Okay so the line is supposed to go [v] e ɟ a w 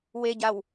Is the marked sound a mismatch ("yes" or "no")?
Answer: yes